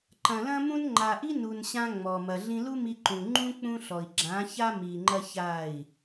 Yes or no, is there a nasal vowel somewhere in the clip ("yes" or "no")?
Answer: yes